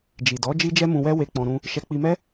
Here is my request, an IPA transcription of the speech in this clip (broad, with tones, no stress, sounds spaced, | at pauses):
d͡ʒ i˨ d ɔ˨˦ d͡ʒ i˦ d͡ʒ ɛ˦ m ũ˧ w ɛ˦ w e˧ k͡p ɔ̃˧ ɾ ũ˧ | ʃ ɛ˧ k͡p i˧ m ɛ˦